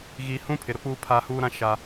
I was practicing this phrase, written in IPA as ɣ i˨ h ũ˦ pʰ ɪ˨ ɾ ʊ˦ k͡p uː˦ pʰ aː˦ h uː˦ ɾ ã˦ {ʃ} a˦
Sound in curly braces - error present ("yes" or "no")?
no